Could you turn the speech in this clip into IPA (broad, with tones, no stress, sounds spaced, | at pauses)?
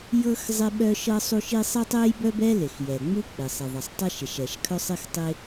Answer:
j ɤ˥ x zˤ ɪ˥ ɓ œ˥ ʃ ɤ˥ sˤ u˥ ʃ i˥ sˤ ɘ˥ tˤ ɛ˥ j b œ˥ b ɛ˥ l ɪ˩ x j ɛ˩ ŋ͡m u˥ k͡p ɪ˩ sˤ ɪ˩ ðˤ ɘ˩ sˤ tˤ ɛ˥ ʃ ɪ˩ ʃ ɛ˩ ʃ kʰ œ˥ sˤ ɪ˥ x tˤ ɪ˥